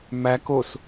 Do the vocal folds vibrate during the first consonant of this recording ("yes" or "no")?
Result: yes